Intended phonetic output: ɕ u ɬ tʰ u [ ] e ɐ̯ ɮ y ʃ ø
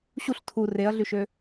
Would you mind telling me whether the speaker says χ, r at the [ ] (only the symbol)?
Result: r